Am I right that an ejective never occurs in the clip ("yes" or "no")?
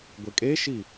no